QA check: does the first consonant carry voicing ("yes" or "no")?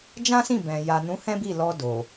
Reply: yes